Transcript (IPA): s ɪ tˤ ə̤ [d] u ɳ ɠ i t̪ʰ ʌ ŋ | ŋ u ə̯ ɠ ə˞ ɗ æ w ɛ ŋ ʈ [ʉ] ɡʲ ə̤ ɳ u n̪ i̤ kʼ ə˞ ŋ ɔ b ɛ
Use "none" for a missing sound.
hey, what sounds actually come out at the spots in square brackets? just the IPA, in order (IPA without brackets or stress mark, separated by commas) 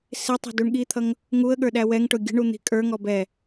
d, ʊ